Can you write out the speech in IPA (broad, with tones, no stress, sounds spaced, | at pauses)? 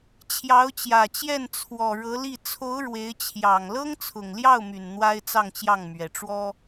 t͡ɕʰ j ɑ˧˥ ʊ̯ t͡ɕ j ä˨˩ t͡ɕ j ɛ˥˩ n t͡sʰ w ɔ˨˩ ɻ ɤ˧˥ l i˥˩ t͡sʰ o˧˥ ʊ̯ ɻ w e˧˥ ɪ̯ t͡ɕʰ j ɑ˨˩ ŋ l ɤ˥ ŋ t͡sʰ ʊ˨˩ ŋ l j ɑ˥˩ ʊ̯ m y˨˩ n n̪ w a˥ ɪ̯ t͡s ɑ˥˧ ŋ t͡ɕ j ɑ˥˩ ŋ m ɥ ɛ˨˩ ʈ͡ʂ w ɔ˥